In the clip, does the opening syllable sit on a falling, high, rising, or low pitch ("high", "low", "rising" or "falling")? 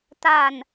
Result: low